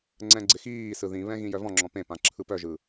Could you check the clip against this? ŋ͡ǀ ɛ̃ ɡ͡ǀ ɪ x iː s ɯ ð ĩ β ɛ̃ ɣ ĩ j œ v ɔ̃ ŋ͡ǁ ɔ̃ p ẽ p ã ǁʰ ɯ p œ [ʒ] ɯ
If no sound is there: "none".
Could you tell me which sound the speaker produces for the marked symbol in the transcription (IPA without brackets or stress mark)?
ʒ